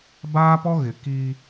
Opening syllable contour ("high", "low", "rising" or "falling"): high